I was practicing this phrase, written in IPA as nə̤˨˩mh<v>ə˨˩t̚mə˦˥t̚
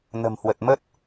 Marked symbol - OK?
no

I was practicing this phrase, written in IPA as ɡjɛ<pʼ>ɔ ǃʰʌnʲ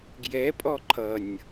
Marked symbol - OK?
yes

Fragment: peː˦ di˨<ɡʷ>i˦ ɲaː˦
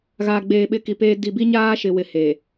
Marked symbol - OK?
no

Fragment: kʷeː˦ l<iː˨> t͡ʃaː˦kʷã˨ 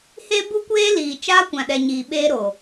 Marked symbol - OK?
yes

